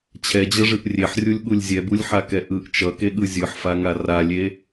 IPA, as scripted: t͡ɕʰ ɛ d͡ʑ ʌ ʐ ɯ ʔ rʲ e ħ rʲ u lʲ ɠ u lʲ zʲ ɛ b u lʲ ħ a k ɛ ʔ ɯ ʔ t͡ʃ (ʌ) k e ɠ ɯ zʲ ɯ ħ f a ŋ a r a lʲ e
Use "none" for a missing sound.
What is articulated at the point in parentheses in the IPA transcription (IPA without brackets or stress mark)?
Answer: ʌ